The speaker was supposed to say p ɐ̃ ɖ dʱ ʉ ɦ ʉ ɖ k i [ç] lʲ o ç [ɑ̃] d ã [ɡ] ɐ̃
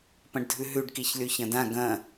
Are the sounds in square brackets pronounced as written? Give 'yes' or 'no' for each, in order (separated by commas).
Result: yes, no, yes